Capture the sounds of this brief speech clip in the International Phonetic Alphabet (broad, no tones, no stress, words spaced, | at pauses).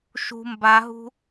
ʃṳ mbaɦṳ